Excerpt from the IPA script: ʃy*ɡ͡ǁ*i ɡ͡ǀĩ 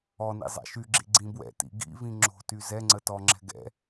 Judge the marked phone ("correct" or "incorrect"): correct